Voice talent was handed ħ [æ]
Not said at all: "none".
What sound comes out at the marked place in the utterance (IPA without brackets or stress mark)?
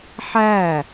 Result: æ